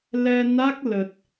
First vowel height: mid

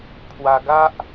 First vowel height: low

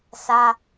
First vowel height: low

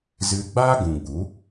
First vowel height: high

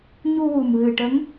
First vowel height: high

